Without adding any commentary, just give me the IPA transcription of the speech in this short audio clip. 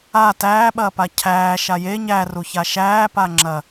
a t æː ɓ ɐː p a cʰ æː ʃ a j e ɲ æ r u ç a ʃ æː p a ŋ͡ǁ ɐ

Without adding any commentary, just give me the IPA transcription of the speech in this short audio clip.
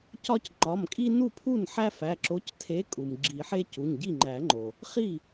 c ɒ˦ c ŋ͡ǃ ɒ˩˧˩ m kʼ i˦ n u˥˩ pʰ u˥˩ n ħ æ˦ f æ˩˧˩ ǁ o˨˥ c tʰ e˨˥ kʼ u˩ m ɡ͡ǁ i˨˩˦ ħ e˦ c u˩˧˩ ɲ ɟ i˥˩ ŋ͡ǃ æ˨˩˦ ŋ͡ǃ o˩ | χ i˥˩

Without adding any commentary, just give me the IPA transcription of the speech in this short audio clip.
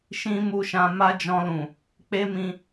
ʃ ĩ˦ m u˧ ʃ ã˧ m a˦ d͡ʒ ɔ̃˧ l ũ˨ | k͡p e˦ m ĩ˧

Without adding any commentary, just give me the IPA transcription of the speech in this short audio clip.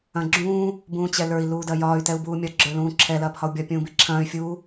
ɐ̃ ɡ͡ǁ ũː | b ũː t͡ɕ ɛ l ə˞ i̯ l uː d ɐ j ɒː y̯ t ɛ u̯ b uː mʲ ɒ ɡ͡ǁ ə˞ l ũː ǁʰ ɛ l ɐː p h ɒ u̯ bʲ ɒ pʲ ũː b i ǁʰ ɐ̃ː y̯ fʲ uː

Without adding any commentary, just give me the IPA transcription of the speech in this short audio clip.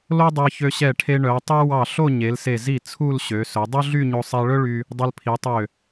l o˥ dˤ ɛ˧ ç ø˧ ɕ ɛ˧˩ ʈʰ e˧ ɳ œ˩˧ tˤ ɛ˥ w ɑ˧˩ ɬ o˥˧ ɲ e˩˧ l s e˧˩ z i˧˩ t͡sʰ u˥˧ l ɕ ø˩˧ s ɵ˩˧ dˤ ɵ˥ ɮ y˥˧ ɲ o˧ sˤ ɛ˧ ɭ ɵ˥ ɭ y˧ | dˤ ɵ˧ l pʰ i˩˧ tˤ ø˧˩

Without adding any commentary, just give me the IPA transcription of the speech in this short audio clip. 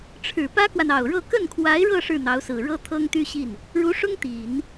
ʈ͡ʂʰ ɻ̩˨˩ p ä˥ k w a˨ n ɑ˨˩ ʊ̯ ɻ ɤ˥˧ k ə˥˩ n kʰ w a˧˥ ɪ̯ ɻ ɤ˥˧ ʂ ɻ̩˥˩ n̪ ɑ˧˥ ʊ̯ s ɹ̩˨˩ ɻ ɤ˥ t̪ʰ ɤ˥ ŋ t̪ y˥ ɕ i˥˩ n | ɻ u˧˥ ʂ ʊ˥ ŋ t̪ i˨˩˦ n

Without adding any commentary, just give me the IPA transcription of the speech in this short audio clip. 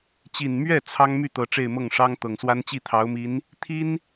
t͡ɕ i˨˩ n m ɥ ɛ˥˩ t͡sʰ ɑ˥ ŋ m y˥˩ t̪ ɤ˨˩ ʈ͡ʂ e˥˧ ɪ̯ m ɤ˥˩ ŋ ʂ ɑ˥ ŋ t̪ ɤ˨˩ ŋ s w a˥ n t͡ɕ i˥˩ t̪ʰ ɑ˧˥ ʊ̯ m i˧˥ n | t̪ʰ i˥ n

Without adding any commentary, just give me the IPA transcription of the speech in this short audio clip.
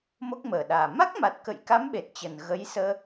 m o˦˥ k̚ m əː˨˩ ɗ aː˨˩ m a˦˥ k̚ m a˨˩ t̚ k ə̰˧˨ j k a˨˦ m ɓ e˨˩ t̚ t͡ɕ ə˨˩ n ɣ ə˨˦ j s əː˧

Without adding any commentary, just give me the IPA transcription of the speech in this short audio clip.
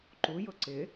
ǃ u j ʊ ǀ ɪ

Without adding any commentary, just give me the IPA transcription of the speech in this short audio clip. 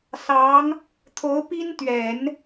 s ɑ˧˥ ŋ | t̪ʰ o˧˥ ʊ̯ p i˥ n t̪ ɥ ɛ˨˩˦ n

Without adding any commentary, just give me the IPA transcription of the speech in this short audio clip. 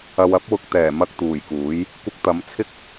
ɐ˨ w ɐ˥ p̚ w ʊ˧ k̚ t̪ ɛː˨˩ m ɐ˧ k̚ t̪ uː˨˩ j k uː˨˥ j | kʷ ɪ˧ k̚ t̪ ɐ˨˥ m t͡sʰ ɪ˥ k̚

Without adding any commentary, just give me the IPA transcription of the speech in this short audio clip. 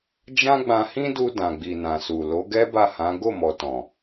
d͡ʒ ã˦ ɡ͡b ã˧ h ĩ˦ d u˧ d ã˨ ɡ͡b i˨ n ã˨ s u˨ l o˨˦ ɡ ɛ˦ b a˦˨ h ã˨˦ ɡ o˦˨ m ɔ˨ t ɔ̃˨

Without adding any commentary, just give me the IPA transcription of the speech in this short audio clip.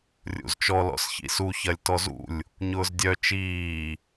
rʲ ṵ z t͡ʃ ɔ l ɔ̰ s ç ḭ s u ç ɐ lʲ t ɔ z ṵ lʲ | ɲ ʊː z dʲ œ t͡ʃ iː

